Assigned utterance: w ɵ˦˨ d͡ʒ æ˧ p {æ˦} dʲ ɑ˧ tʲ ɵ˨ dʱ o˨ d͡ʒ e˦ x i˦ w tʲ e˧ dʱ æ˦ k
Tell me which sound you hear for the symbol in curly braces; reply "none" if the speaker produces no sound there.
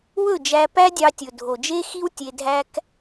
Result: æ˦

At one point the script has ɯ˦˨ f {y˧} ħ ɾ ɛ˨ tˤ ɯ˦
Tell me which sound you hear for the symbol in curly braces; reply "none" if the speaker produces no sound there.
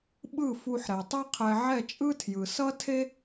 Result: u˧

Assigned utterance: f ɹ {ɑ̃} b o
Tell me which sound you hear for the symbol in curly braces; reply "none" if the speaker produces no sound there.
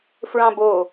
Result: ɑ̃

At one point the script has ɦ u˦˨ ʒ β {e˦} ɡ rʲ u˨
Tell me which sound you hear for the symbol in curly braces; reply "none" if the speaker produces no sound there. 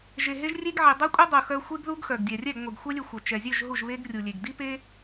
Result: e˦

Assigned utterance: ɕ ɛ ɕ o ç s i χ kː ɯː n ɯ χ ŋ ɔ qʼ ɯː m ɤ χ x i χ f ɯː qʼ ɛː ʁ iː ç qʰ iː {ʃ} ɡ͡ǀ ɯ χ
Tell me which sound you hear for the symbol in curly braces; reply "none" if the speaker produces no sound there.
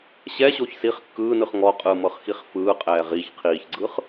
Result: ç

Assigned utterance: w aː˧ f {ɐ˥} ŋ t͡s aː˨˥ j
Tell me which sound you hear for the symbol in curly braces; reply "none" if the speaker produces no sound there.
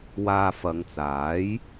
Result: ɐ˨˧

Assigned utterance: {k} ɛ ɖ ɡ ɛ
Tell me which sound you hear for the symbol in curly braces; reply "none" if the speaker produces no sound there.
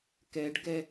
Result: k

